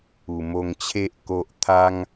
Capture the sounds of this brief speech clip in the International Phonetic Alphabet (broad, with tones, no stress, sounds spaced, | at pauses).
u˨˩ m o˧ ŋ t͡ɕʰ e˦ ʔ k o˨ ʔ t̪ʰ a˧ ŋ